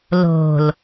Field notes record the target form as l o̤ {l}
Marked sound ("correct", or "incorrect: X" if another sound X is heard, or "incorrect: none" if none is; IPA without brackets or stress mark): correct